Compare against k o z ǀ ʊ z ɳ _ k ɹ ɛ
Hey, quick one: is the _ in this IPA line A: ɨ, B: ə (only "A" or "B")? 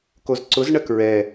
B